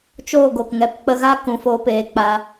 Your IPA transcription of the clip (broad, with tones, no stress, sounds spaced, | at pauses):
t͡ʃ oː˦˨ ɡ o˨ k ŋ ɛ˨˦ p k͡p ə˧ ɣ a˦ k ũ˨ f oː˧ p eː˨ k͡p a˧